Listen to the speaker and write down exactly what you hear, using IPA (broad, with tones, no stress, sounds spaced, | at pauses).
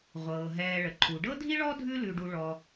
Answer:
ʁʷ ɤː˩ ɦ ɛː˨ ɭ ə˩ ǃʰ u˩ ɖ ɤ˥ dʱ i˥ ɭ ɔ˥ dʱ ʉ˥ l ʉ˨ ɖ u˨ ɭ ɔ˨